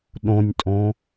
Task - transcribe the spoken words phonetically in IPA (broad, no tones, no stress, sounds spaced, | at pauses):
ɗ õ nʲ tʼ õ